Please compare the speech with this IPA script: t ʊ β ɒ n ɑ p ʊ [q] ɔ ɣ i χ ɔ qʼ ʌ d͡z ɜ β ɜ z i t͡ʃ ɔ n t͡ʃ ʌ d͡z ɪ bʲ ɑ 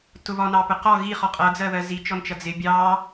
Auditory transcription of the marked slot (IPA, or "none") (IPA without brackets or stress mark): q